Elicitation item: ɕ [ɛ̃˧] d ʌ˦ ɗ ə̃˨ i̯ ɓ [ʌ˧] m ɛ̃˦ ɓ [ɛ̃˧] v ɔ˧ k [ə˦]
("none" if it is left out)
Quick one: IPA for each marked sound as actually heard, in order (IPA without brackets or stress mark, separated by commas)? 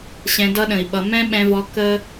ɛ̃˧, ʌ˧, ɛ̃˧, ə˦